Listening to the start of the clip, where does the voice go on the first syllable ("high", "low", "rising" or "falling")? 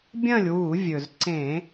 falling